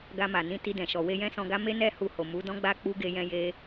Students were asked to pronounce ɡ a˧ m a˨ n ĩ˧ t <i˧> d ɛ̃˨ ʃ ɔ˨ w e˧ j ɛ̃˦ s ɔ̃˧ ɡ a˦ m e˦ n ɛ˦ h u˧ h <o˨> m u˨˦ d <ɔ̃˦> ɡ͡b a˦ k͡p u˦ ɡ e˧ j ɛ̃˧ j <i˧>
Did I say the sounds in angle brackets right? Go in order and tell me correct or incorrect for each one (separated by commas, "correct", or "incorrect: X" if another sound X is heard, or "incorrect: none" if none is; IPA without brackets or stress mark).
correct, correct, correct, incorrect: e˧